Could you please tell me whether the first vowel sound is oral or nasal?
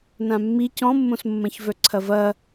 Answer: nasal